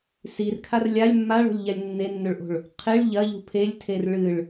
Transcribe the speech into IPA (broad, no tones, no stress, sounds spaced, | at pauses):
s i r kʰ a r lʲ a lʲ mː a ɭ o̤ lʲ ʎ a lʲ nː e nː ɵ ɭ ʔ o̤ ɭ | qʰ e ɭ ʎ ɐ ʎ ṳ pʰ e lʲ tʰ e r ɭ ɨ ɭ